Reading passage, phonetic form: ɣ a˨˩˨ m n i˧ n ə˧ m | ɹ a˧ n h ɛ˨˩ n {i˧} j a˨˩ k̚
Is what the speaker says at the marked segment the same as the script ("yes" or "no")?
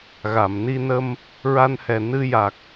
no